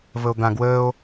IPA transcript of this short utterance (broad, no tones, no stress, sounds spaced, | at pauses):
v ə o̯ d̪ ã ɡ w əː o̯